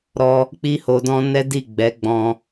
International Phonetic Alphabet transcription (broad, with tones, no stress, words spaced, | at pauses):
ɾɔ˧ | k͡pi˧ho˨dɔ̃˧ nɛ˦di˦˨ɡ͡bɛ˨˦ ɡ͡bɔ̃˧